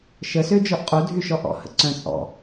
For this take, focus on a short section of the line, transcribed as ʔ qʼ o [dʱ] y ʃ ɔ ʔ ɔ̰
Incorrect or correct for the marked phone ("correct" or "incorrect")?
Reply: correct